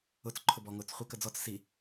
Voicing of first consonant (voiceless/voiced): voiceless